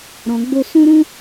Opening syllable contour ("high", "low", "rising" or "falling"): low